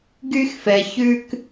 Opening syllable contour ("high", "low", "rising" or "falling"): high